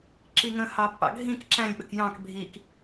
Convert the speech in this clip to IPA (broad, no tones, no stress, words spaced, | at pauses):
ǁiŋə̃ hɑpːɑ̰ɡʱĩk ǁæ̃lʲ ɓəkjɑ̃k bʱik